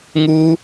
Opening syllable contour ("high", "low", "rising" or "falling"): high